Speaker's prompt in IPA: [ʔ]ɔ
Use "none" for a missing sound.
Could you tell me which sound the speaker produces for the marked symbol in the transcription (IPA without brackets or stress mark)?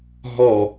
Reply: ɦ